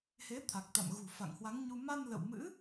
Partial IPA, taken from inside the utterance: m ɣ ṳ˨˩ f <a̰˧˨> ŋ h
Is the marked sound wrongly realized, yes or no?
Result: no